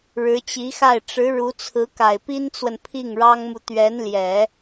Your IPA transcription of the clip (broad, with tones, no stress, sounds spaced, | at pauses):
ɻ ɻ̩˧˥ t͡ɕ i˧˥ x a˥˩ ɪ̯ ʈ͡ʂ ɻ̩˧˥ ɻ u˧˥ t͡sʰ ɹ̩˧˥ k a˨˩ ɪ̯ p i˥ n t͡s w ə˨ n pʰ i˥˩ ŋ ɻ ɑ˥ ŋ m u˨ t̪ ɥ ɛ˧˥ n l j ɛ˨˩˦